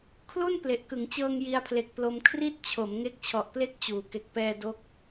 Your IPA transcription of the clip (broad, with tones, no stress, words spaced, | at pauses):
kʰlu˥˩n ple˨˩ʔ kɯ˩˦ŋt͡ɕɤː˧ŋ ji˧a̯pʰle˨˩k̚plo˧m kʰri˥˩t̚t͡ɕʰo˩˦m ŋe˦˥k̚t͡ɕʰɔ˨˩ʔple˥˩k̚ t͡ɕuː˨˩ ke˨˩k̚pɛː˧ do˦˥k̚